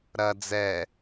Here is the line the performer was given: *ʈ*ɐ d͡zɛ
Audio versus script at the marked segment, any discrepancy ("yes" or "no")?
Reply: yes